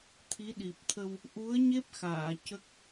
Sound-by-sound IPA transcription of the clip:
t̪ʰ i˧˥ ɗ i˨˩ p̚ t̪ʰ ə˧ w | ʔ u˧˥ ə̯ ɲ e˦˥ p̚ x aː˨˩˨ c ə˦˥ k̚

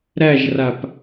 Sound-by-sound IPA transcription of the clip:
ɾ æ ʒ r a p

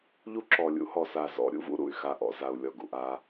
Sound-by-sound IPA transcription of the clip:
ʎ u˦ ǁ ɔ˨ lʲ ṵ˦ h ɔ˨ s a˨ z ɔ̰˨˦ ɾʲ ṵ˦ v ṵ˦ ɾ ṵ˨ y̯ x a˦ ʔ ɔ̰˨ z a˨ u̯ lʲ ɔ˨ ɡ ṵ˨ ʔ a˦

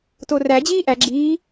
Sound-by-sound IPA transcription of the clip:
t o r æ d͡ʑ iː ʔ æ ɡ͡ǁ i

